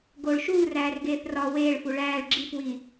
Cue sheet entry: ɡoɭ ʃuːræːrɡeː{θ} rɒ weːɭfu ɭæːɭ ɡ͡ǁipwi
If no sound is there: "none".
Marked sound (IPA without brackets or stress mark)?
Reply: θ